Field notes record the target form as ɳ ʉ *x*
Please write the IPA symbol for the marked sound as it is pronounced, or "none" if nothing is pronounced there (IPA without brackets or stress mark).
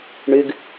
ɡ